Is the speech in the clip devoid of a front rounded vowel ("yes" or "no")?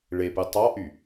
no